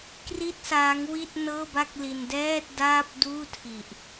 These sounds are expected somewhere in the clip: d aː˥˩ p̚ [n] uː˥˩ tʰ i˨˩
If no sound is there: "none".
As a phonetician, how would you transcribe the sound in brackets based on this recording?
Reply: d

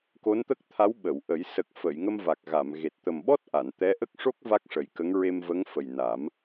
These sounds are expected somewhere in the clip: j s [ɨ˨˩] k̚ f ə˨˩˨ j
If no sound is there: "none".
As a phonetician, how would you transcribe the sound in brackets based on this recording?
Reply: ə˨˩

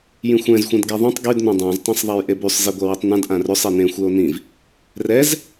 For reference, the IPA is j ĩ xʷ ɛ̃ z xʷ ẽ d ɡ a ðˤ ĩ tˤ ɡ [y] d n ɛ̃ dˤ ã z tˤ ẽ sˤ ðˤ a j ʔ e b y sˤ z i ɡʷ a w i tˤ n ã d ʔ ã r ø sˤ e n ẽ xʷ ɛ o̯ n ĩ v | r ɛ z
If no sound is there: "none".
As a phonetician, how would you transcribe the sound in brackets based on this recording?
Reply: y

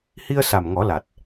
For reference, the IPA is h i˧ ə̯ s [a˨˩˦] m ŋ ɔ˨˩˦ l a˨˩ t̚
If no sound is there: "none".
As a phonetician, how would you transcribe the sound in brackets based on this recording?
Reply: a˨˩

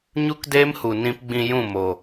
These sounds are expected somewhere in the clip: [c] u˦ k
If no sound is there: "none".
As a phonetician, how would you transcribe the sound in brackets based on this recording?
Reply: ɲ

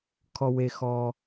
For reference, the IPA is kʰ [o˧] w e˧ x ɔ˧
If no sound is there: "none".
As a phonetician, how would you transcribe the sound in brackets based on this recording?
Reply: ɔ˧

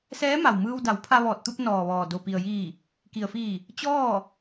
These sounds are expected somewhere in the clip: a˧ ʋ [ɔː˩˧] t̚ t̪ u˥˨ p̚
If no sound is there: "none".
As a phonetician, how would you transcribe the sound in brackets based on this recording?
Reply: ɔː˧˩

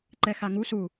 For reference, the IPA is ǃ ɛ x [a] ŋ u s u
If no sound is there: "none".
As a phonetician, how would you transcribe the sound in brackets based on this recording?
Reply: a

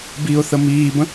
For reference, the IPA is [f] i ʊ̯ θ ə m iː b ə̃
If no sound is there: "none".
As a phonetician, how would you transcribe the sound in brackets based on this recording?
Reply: b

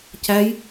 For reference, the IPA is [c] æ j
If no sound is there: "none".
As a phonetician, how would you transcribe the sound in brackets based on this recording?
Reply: c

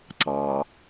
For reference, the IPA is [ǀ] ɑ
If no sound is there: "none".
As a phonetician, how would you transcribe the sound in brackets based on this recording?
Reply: ǀ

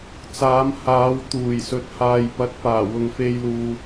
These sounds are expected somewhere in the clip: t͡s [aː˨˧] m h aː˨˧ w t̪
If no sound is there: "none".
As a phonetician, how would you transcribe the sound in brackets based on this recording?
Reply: aː˨˧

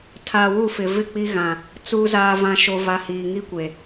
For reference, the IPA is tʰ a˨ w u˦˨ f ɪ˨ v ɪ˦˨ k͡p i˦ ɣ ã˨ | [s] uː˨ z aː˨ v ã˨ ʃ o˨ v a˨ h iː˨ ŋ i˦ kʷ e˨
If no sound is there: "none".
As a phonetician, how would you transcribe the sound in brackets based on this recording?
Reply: t͡s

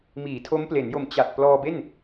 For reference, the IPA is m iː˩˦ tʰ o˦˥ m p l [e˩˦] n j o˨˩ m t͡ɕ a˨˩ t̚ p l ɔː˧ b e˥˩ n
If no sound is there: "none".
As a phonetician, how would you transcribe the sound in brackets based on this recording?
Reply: e˩˦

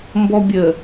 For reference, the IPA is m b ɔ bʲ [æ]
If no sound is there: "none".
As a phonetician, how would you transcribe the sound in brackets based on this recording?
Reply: ə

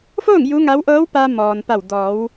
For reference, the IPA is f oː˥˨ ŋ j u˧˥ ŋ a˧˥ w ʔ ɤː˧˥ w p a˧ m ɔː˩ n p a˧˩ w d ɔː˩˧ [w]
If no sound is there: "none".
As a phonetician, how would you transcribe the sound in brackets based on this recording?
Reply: w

